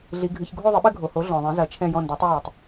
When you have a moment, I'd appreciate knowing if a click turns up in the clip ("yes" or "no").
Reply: no